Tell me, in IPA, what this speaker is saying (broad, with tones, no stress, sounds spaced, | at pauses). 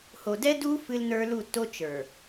h o˨ d ɛ˦ d u˦ f ɨ˦ l n ə˞˦ l u˦˨ tː o˦ t͡ʃ ə˞˨